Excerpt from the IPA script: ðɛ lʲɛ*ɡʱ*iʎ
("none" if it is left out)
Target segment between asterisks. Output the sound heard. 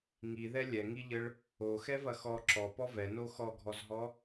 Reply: ŋ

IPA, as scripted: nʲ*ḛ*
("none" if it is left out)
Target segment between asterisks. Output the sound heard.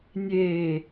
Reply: e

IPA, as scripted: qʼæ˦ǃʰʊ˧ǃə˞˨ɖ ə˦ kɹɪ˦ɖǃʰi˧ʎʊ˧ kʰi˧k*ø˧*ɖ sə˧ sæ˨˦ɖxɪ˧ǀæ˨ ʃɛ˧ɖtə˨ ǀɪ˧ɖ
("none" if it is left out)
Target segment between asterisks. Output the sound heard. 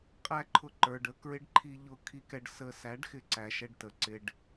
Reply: ɛ˧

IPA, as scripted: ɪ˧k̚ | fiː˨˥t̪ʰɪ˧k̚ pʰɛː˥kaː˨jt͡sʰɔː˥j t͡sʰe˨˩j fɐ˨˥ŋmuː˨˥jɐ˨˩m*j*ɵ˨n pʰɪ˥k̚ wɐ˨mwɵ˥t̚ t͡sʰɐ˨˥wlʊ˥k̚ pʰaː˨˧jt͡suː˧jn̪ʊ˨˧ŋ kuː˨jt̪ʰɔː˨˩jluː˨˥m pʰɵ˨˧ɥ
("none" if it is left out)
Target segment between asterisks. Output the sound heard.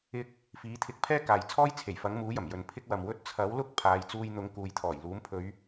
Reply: j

